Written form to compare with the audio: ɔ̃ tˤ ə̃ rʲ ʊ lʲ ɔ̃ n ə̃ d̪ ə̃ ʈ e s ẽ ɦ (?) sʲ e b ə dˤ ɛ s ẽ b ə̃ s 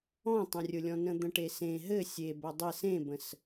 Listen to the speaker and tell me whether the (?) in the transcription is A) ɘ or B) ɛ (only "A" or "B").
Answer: A